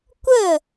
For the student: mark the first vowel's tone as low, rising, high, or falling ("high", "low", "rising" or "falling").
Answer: falling